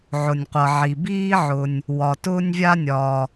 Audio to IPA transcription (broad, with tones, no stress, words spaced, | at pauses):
ʕʊ˩nʲqʷʌ˩ʕi˩ biː˥ʕʊ˩nʲ | wɒ˩tʊː˥nʲvʲa˥ nʲɒ˩